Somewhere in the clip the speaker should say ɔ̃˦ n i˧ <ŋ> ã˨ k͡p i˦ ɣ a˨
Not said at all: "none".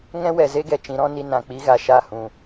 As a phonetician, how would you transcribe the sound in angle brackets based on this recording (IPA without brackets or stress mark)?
n